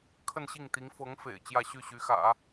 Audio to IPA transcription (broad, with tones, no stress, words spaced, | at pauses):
kʰə˥˧nɕi˥˩ŋt̪i˧˥ŋ fɤ˧˥ŋ fḛ˨˩ɪ̯ t͡ɕjä˥˧ɕy˥˩ɕy˧˥xä̰˨˩˦